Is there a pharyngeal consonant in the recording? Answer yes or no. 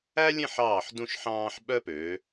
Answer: yes